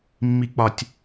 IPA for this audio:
mː i k͡p ɒ tʲ

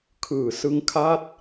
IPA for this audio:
kʰ ɯː˨˩ s ɯ˦˥ ŋ kʰ a˥˩ t̚

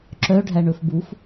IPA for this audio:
ǁ œ ɖʱ æ ɳ ɵ f b u f

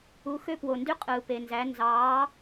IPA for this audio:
u˨˥ x ø˥ p w o˨ n d y˥ qʼ ɯː˨ p e˨ n z æ˨˥ n z ɑː˨˥

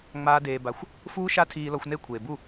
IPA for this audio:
ŋ͡m aː˦ d eː˧ b a˧ xʷ | f uː˦ ʃ a˦ tʰ iː˧ l ɔ˧ xʷ n e˦˨ kʷʰ eː˨ b u˦˨

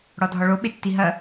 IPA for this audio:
ɽ ɔ dʱ ɔ ɭ o ɓ e tː i ɦ ɐ

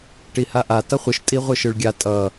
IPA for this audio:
ʈ i h a ʔ a t ʌ χʷ ɯ ʃ tʼ i ʁʷ ɯ ʃ ɯ ɭ ɡʲ a tʼ ʌ

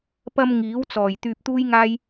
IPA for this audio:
p ɐ˧ m ŋ iː˨˥ w t͡s ɔː˨˩ j t̪ yː˧ p̚ t̪ uː˥ j ŋ aː˥ j

